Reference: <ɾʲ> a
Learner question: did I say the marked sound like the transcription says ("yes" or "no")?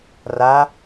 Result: no